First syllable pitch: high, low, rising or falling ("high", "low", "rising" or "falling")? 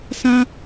high